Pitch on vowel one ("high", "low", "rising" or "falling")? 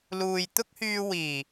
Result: low